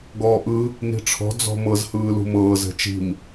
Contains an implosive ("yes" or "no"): no